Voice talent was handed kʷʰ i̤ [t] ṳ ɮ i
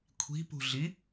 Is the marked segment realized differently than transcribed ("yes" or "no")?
yes